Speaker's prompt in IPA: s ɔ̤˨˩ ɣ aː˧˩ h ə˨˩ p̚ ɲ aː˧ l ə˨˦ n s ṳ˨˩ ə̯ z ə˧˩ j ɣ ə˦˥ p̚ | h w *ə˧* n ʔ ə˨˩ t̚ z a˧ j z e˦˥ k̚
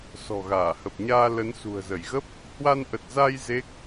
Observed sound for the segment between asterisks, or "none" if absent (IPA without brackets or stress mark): a˧